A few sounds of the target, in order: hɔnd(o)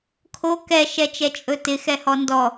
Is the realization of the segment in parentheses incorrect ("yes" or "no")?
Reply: yes